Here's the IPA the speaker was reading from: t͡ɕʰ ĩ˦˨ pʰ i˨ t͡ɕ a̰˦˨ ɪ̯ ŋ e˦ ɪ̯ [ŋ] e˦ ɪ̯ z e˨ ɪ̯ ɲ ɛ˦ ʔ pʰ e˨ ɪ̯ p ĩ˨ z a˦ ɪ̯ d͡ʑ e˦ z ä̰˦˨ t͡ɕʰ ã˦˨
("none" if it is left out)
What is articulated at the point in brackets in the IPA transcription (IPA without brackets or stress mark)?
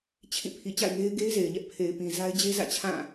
ɡ